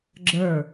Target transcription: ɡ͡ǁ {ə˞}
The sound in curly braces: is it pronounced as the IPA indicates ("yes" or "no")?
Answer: yes